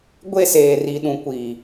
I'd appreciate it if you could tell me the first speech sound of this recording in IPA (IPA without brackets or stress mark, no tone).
ɡʷ